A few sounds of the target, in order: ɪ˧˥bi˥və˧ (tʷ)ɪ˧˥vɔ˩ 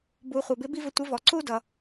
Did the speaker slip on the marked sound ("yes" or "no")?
no